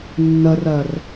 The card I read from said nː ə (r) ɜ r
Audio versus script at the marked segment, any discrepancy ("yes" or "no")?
no